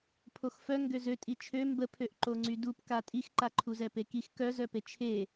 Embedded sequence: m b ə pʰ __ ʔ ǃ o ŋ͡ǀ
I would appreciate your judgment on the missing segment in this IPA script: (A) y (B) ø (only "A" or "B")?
B